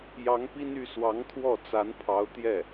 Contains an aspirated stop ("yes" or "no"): yes